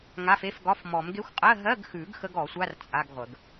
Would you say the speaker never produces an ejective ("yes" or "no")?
no